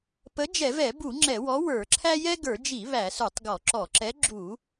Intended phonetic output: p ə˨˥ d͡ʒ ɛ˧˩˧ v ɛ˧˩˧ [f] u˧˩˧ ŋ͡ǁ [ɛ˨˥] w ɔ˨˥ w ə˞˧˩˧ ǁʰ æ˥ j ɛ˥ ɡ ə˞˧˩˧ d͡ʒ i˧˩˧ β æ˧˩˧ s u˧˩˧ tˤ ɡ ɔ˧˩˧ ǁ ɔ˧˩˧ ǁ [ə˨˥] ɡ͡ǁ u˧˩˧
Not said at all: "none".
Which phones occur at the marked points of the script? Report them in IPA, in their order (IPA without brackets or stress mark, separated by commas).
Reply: b, ɛ˧˩˧, ɛ˨˥